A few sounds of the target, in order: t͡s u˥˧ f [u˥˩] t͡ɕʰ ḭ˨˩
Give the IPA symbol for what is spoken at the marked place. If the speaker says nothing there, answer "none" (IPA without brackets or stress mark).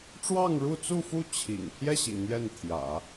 u˥˩